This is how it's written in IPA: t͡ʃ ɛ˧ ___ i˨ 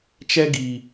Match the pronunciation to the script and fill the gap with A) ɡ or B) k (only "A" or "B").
A